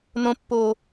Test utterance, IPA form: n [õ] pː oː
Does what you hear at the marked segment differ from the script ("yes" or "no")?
no